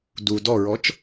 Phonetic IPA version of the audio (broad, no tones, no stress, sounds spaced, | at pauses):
d u d ɔ ɹ ɔ t͡ʃ